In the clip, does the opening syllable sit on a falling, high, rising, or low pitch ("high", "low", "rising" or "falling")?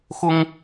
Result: high